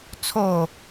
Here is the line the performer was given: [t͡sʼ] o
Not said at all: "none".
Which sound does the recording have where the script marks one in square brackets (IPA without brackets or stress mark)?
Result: t͡sʰ